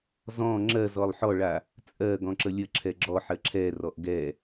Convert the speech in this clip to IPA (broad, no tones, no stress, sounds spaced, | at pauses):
z ɔ̃ ŋ͡ǁ ɜ z ɔ lˠ ħ ɔ ɭ a | t͡sʼ ɜ ɡ ɔ̃ ǁ ə lʲ ə ǁʰ ɛ ɡ͡ǁ ɔ ħ ɜ ǁʰ ɛ r ɔ ʔ ɡ ɛ